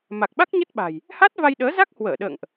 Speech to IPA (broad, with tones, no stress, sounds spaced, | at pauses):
m a˨˩ k̚ ɓ a˦˥ k̚ ɲ ə˦˥ t̚ ɓ a̤˨˩ j | h a˦˥ t̚ v a˧ j ɗ əː˨˦ z a˦˥ k̚ h w əː˧˩ ɗ ə̰ː˧˨ ŋ ʔ